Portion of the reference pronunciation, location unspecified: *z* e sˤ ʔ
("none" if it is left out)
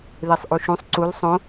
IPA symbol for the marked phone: ð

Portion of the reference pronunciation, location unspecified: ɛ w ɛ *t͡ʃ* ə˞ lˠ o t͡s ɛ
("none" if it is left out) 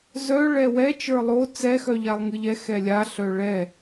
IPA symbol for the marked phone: t͡ʃ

